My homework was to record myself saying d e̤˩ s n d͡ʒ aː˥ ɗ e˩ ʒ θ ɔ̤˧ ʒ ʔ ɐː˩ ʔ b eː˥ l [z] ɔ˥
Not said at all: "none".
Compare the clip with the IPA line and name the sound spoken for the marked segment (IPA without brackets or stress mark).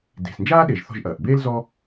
z